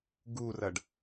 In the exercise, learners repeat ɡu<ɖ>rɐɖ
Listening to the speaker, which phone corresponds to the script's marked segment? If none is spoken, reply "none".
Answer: none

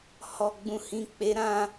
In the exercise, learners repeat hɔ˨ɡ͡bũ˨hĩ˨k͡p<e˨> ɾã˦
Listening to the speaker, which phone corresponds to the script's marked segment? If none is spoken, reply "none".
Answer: e˨˦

